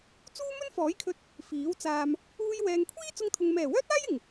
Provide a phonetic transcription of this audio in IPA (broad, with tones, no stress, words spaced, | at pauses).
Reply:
t͡suː˥mɵ˥n fɔː˨˥jkʰɵ˧t̚ | fiː˨˥w t͡saː˧m | uː˧j wɛː˨ŋkʷʰiː˥ t͡sʊ˧ŋt̪ʰʊ˨ŋ mɛː˨˩wœː˥t̚aː˥jɪ˨˩ŋ